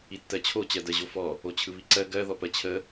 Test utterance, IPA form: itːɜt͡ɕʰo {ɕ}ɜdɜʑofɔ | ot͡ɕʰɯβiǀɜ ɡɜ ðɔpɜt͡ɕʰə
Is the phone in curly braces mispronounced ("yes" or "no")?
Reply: yes